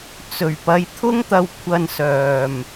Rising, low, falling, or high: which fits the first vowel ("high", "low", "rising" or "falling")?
low